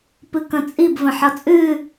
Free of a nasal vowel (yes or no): no